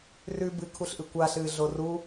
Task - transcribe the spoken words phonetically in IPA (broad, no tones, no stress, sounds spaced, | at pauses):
r ʉ b ɨ kʰ u ɬ ʔ ɨ kʷ a ɬ ɨː ɮ o r u